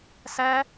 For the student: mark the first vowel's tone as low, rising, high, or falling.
high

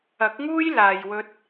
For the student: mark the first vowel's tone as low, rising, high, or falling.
rising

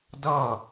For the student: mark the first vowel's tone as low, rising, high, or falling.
falling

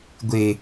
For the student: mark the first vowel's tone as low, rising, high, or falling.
low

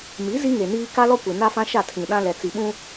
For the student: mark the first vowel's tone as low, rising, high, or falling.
rising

